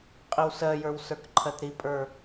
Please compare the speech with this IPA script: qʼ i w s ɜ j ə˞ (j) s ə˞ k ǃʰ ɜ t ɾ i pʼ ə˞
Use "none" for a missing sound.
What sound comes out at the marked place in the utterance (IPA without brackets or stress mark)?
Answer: w